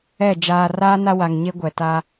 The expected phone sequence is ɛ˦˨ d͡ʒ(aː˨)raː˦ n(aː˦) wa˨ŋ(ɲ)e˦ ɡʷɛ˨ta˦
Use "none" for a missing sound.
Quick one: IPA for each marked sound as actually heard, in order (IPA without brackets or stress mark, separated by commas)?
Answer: aː˨, a˦, ɲ